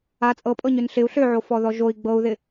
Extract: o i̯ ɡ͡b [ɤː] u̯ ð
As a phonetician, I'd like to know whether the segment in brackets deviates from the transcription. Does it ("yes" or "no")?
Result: yes